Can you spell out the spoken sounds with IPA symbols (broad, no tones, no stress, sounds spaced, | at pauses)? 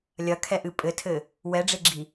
lʲ ɐ kʰ ɛ ʔ ɨ pʼ ɘ tʰ ɘ | w ɛ ɖ͡ʐ e ɡ͡ǁ i